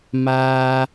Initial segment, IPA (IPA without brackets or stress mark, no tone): m